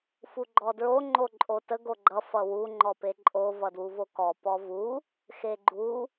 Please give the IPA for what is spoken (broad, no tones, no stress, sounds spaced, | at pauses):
f u ɡ͡ǃ ɔ d ɹ o ŋ͡ǃ o ǃʼ o t ə ɡ o ɡ͡ǃ ʌ f ʌ w u ŋ͡ǃ ɔ p e ǃʼ o v ʌ d w u v o k ɔ p ɔ v u | x e ɡ͡ǃ u